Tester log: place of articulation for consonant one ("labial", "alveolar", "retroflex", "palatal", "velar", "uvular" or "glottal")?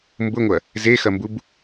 labial